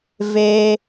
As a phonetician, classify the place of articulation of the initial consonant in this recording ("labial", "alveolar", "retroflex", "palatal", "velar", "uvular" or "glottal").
labial